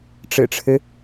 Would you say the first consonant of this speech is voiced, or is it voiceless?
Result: voiceless